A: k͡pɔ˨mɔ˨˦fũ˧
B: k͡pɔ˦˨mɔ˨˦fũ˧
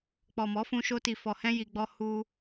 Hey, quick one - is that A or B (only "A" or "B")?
A